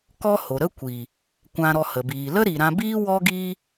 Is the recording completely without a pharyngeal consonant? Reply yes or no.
yes